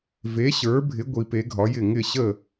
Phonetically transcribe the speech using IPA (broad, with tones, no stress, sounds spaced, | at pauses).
v e˧˥ ɕ ə˞˧˥ bʱ ɪ˧˥ ɡʷ i˧˥ p e˧˥ ɡʱ ɒ˧˥ j ɪ˥˧ ŋ ɪ˥˧ ɕ ə˥˧